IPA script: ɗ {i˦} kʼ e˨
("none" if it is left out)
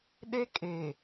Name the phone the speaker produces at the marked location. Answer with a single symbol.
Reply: e˦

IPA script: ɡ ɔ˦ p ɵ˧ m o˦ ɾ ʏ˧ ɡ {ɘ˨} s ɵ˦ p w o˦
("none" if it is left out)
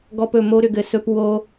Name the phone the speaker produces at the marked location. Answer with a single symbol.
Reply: ɘ˨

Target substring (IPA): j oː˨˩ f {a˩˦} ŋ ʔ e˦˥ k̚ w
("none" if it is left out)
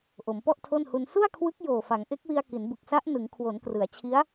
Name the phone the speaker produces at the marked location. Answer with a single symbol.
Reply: a˩˦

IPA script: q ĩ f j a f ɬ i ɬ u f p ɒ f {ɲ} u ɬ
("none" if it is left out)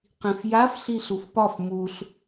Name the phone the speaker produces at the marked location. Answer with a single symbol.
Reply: m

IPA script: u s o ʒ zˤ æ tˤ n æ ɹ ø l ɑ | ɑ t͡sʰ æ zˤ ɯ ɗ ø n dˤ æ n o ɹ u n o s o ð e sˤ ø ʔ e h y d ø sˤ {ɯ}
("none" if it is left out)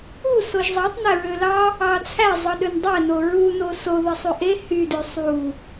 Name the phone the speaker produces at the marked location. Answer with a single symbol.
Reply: u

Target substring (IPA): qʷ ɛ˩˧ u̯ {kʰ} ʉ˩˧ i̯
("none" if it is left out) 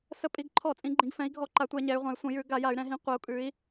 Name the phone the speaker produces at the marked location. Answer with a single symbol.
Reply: kʼ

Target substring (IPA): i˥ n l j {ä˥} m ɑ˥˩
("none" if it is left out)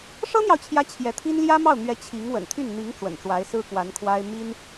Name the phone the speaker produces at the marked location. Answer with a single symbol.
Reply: ä˥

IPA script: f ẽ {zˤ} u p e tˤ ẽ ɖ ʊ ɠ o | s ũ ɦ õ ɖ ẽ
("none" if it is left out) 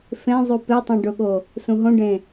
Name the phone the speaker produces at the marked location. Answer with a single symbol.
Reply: zˤ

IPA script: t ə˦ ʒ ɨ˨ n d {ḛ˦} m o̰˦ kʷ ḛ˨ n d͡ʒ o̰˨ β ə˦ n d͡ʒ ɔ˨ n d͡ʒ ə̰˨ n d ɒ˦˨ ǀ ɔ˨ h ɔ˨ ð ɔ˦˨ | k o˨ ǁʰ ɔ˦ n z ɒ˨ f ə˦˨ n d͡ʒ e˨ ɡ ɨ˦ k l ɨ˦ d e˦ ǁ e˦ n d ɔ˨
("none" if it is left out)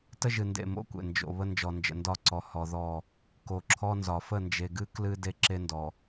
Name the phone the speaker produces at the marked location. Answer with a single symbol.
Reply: ḛ˦˨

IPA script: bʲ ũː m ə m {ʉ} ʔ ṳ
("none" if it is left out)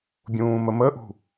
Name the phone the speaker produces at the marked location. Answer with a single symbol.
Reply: ə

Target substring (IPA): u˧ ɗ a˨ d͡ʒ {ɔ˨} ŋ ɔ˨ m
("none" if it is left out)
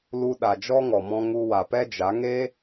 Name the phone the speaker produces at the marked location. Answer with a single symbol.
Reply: ɔ˦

